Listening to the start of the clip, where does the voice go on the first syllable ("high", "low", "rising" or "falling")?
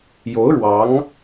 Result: rising